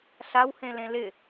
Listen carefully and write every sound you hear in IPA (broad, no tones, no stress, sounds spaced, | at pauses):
ɬ a w h ẽ l ẽ l ɪ